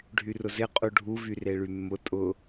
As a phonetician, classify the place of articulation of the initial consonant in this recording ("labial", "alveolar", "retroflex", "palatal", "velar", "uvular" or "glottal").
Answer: retroflex